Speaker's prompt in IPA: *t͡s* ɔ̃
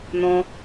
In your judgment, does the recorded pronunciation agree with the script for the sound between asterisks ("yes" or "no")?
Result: no